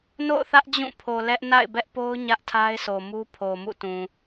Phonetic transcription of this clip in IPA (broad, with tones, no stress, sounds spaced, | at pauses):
n o̰˦˨ ʊ̯ θ ä˦ ʔ d͡ʑ ũ˦˨ pʰ o˨ l ɛ˦ ʔ n a̰˦˨ ɪ̯ b ɛ˦ ʔ p o˦ ʊ̯ ɲ ä˦ ʔ tʰ a˦ ɪ̯ s o˨ m u˦ pʰ o˨ m ṵ˦˨ t ũ˨